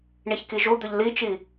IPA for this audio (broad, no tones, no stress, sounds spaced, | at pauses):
ɳ i ç k i ʒ u d̪ ɵ ʎ l i t͡ʃ i